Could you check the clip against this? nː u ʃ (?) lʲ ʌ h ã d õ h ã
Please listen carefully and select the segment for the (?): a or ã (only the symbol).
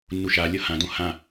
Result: a